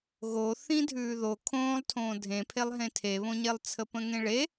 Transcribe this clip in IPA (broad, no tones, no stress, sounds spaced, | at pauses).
ɣ o θ ĩ dʱ ʉː ð o kʰ õː lˠ tʰ õː dʱ ẽ pʰ e lˠ ɦ ẽ tʰ e β õ ɲ e lˠ t͡sʰ ə p ə̃ ŋ ẽ ɭ e